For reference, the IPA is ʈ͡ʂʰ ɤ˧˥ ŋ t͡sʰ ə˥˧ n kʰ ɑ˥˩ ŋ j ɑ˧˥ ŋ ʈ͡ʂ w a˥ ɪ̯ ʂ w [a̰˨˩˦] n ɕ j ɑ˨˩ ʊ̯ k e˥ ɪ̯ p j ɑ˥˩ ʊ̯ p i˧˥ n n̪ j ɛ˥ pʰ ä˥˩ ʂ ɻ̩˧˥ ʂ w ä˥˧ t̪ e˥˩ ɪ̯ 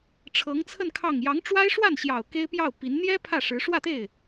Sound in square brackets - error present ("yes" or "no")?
yes